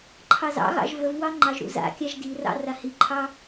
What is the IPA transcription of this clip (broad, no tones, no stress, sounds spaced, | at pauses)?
ǃʰ ɑ z ɑ̰ ɣ ɑ̰ ʒ v ə v w ɑ ŋ͡ǃ ɑ ʒ ɾ ṵ z a̰ kʲ a ʒ d i r ɑ̰ r a h i ǃʰ ɑ